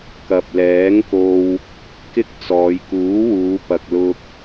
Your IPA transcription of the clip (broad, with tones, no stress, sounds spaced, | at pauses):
k ɐ˨ p̚ l ɛː˨˥ ŋ k o˧ w | k ɪ˥ k̚ t͡s ɔː˨˧ j k uː˨˥ w uː˨˧ p ɐ˨ k̚ l ʊ˧ k̚